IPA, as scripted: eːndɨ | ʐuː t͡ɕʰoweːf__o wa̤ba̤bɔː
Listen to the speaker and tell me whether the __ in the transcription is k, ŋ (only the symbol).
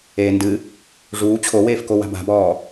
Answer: k